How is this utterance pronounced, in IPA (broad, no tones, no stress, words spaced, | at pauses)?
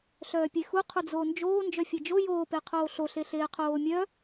ɬœːpʲexu qʰud͡zoːnd͡ʒoː nd͡ʒœfʲed͡ʒo joːpeqʰoː ɬoɬe ɬeːqʰoːmʲœ